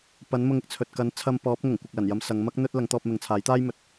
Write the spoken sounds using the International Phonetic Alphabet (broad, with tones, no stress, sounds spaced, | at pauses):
p ɐ˨˥ n m ʊ˧ ŋ ɪ˨ k̚ t͡sʰ ɵ˨ t̚ k ɐ˨˥ n t͡sʰ ɐ˧ m p ɔː˨˥ p̚ ŋ ʊ˨˩ ŋ kʷ ɪ˨ k̚ l ɐ˨˩ n j ɐ˧ m s ɐ˨˧ ŋ m ɐ˥ k̚ n̪ ɵ˥ t̚ l ɐ˨˥ ŋ t̪ ɔː˧ p̚ m ɪ˨ ŋ t͡sʰ aː˨˥ j t̪ aː˥ j m ɵ˨˥ t̚